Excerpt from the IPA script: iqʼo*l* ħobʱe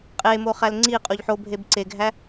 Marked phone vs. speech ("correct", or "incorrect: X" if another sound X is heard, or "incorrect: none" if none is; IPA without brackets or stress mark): incorrect: ʎ